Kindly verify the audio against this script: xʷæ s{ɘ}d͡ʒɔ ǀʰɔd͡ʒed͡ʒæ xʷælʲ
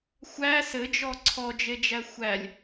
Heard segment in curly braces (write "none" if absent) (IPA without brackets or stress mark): ɘ